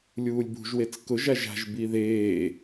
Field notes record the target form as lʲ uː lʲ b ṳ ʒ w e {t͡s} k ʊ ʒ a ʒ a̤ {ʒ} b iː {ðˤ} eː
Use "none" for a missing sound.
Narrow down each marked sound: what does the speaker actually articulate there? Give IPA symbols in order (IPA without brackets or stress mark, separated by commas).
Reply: t͡s, ʒ, ð